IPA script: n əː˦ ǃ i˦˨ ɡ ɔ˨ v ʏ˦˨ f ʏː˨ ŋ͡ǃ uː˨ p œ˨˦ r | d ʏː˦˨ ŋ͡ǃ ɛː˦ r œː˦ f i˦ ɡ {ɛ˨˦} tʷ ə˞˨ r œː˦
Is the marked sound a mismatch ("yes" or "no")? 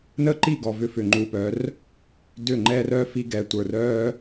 no